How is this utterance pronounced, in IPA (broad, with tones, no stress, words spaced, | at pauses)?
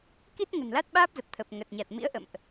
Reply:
ki˦˥t̚ ŋə̤˨˩nla˦˥t̚ɓaː˦˥p̚zə˨˩p̚ t̪ʰə˨˩p̚ ŋə˨˩t̚ ɲa˨˩t̚mḭ˧˥ə̯ʔə̰˧˨mʔ